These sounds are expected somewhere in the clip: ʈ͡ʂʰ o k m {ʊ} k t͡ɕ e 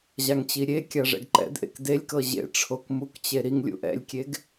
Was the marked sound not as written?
yes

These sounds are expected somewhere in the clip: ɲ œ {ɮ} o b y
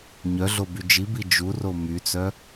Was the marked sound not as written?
no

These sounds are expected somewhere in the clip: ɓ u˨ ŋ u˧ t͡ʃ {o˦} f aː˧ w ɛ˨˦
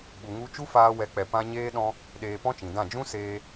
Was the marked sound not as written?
yes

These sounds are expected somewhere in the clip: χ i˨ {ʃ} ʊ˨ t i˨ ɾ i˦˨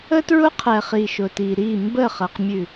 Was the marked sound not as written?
no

